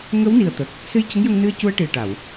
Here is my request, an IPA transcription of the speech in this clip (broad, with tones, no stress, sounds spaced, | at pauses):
ŋ ə˧˥ w n i˨˩ ə̯ t̪ ə˨˩ k̚ | s ɨ˧ j c ə˧˥ ŋ j ə˧ ŋ n ɨ˧ ə̯ c u˧ ə̯ ʈ i˨˩ ə̯ ʈ a˨˩˨ w